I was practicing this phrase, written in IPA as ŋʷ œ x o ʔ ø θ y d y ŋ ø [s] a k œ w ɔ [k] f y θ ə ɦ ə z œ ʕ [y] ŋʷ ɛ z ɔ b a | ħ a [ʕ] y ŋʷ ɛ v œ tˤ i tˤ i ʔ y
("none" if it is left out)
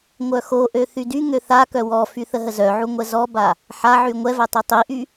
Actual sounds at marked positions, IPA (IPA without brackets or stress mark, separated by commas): θ, none, u, ʕ